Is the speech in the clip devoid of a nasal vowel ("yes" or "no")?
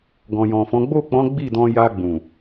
no